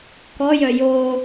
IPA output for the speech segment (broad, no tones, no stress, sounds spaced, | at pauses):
k ɔ j œ j o